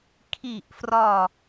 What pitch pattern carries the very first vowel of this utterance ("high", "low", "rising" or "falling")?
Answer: falling